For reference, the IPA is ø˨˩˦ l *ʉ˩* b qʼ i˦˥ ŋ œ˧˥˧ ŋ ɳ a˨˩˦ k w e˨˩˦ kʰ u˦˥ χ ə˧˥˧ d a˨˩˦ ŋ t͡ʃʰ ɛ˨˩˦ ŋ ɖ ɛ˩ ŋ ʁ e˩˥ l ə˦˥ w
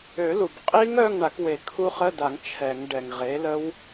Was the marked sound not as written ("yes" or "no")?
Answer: yes